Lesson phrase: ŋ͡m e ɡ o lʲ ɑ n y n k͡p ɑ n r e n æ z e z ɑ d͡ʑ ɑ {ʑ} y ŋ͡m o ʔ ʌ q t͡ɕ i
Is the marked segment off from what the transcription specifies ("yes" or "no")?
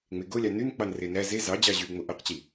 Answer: no